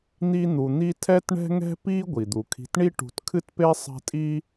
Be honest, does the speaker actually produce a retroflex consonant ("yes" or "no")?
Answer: yes